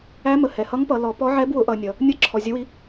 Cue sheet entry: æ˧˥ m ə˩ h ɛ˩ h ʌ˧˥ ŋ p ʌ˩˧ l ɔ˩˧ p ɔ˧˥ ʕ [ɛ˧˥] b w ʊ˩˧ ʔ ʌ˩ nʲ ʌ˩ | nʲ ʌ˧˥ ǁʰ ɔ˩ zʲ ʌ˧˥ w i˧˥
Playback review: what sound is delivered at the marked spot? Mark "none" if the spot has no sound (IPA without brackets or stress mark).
ɛ˧˥